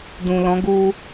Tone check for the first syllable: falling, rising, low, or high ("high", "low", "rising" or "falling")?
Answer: low